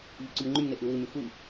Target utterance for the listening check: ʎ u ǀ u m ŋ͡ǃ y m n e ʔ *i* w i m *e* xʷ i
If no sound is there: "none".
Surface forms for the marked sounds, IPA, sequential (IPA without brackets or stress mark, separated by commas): ɨ, y